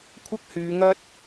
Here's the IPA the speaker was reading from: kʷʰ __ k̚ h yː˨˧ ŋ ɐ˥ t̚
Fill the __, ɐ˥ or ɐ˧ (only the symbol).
ɐ˥